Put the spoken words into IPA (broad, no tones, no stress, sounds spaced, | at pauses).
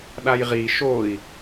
ɗ a j ʁ i ʃ o i̯